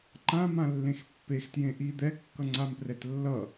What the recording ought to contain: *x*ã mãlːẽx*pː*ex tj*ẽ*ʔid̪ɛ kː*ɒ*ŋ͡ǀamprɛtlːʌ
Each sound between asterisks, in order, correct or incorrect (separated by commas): incorrect, correct, correct, incorrect